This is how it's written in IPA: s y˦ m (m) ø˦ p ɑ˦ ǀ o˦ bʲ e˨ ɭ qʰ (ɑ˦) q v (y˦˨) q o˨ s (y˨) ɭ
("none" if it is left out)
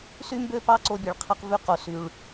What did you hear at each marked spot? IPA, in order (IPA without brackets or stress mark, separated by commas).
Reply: b, ɑ˦, y˦˨, y˨